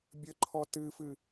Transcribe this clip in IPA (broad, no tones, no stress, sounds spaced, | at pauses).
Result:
bʲ ə ǃʰ ɔ t ɨ f ɨ